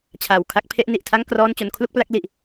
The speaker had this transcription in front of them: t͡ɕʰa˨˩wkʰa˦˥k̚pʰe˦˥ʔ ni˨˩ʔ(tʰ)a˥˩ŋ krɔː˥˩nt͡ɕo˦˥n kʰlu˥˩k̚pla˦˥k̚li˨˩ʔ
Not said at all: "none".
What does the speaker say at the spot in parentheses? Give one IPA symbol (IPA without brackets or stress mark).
tʰ